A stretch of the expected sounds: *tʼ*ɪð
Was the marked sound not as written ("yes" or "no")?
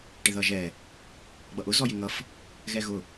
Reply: yes